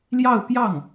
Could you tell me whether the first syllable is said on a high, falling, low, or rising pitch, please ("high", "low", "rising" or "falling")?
falling